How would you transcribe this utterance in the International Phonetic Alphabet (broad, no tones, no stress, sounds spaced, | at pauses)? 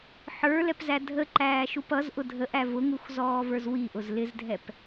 ħ ə˞ l ɛ p z æ dʱ ə ǃ æː ʃ u p ʌ z ʔ ʊ dʱ ə ʔ æ v ʊ ŋ u x z ɔː v ə˞ z w i ʔ ʊ z l ɪ z dʱ ɛ p